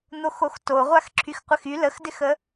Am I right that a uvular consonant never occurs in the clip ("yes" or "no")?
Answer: no